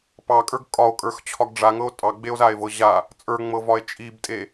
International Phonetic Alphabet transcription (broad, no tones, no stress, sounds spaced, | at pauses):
p ɑ kʼ ə˞ ɡ kʼ ɒ o̯ kʼ ə˞ x t͡ɕʰ ɒ ɡ ɖ͡ʐ a ŋ ɤ o̯ tʼ ɑ ɡ͡b e o̯ z a e̯ v ɤ ʑ a | t͡sʼ ə˞ ŋ͡m ɤ v ɒ e̯ t͡ʃʼ i b tʼ e